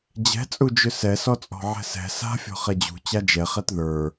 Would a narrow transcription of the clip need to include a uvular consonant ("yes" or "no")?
yes